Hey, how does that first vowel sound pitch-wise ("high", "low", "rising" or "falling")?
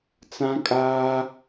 high